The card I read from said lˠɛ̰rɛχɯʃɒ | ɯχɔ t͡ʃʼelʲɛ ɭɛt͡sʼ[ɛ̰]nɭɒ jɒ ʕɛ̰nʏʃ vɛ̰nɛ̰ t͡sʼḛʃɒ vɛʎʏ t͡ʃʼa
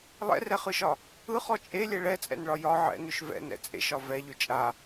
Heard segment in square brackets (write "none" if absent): ɛ̰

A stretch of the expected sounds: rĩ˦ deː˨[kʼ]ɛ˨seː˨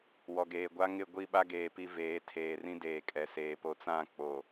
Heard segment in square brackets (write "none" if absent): kʼ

